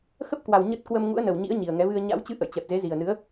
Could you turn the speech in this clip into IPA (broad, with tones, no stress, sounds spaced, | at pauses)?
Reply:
x ə˦˥ p̚ k w a˨˩ w ɲ ə˦˥ t̚ k w ə˧ m ŋ ṵ˧˥ ə̯ n ə˨˩ w ɲ ḭ˧˥ ə̯ ɲ i˨˩ ə̯ ŋ ɛ˨˦ v ɨ˧ ə̯ ɲ a̰˧˥ w t͡ɕ ɨ˧ ʔ ə̰˧˨ j t͡ɕ ɛ˨˩ p̚ z e˨˦ z i˨˩ ə̯ n ɨ˨˦ ə̯